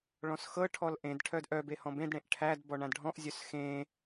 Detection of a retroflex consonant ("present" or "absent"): present